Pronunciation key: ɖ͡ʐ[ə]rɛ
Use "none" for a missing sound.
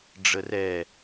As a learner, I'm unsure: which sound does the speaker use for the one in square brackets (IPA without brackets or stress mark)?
ə